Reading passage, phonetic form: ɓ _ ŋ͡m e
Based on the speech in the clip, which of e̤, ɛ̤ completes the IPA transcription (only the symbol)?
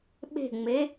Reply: e̤